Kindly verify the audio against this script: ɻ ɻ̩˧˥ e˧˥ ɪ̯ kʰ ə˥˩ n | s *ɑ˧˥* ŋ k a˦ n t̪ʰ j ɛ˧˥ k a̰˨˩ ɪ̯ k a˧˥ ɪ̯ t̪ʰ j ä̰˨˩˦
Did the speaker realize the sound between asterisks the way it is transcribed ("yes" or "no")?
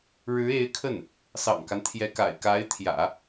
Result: no